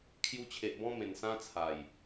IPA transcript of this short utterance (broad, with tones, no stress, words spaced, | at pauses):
kʰju˧t͡ɕʰe˨ʔ bɔ̃˦mẽ˨˩nsã˦ t͡sʰa˨˩j